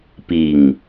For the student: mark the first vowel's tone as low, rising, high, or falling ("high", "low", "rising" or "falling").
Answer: low